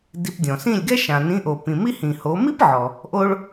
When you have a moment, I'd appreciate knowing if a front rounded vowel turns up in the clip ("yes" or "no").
no